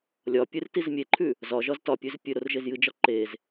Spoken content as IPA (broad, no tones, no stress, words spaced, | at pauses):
lʲɒpʲɨr tizmʲeǃʰʉ | zɒʒɒz tɒpʲʉz pʲɨɾor ʒezjɨd͡ʒɒ ǃez